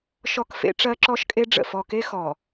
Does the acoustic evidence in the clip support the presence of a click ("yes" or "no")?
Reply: yes